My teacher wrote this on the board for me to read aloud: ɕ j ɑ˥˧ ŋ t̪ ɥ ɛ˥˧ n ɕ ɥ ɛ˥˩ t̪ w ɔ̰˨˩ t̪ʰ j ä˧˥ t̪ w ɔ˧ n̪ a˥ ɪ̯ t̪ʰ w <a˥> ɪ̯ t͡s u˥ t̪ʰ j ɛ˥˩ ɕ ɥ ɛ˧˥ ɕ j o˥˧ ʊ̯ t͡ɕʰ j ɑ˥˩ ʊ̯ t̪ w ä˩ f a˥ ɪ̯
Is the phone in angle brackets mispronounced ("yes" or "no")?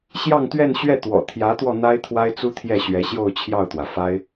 no